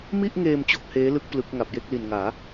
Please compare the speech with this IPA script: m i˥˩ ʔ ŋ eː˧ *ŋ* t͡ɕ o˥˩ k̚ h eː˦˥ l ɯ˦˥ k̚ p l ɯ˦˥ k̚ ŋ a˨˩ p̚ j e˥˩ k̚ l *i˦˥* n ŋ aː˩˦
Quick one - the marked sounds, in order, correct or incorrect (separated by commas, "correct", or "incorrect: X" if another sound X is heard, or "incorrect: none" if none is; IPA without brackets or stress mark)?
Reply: incorrect: m, incorrect: i˨˩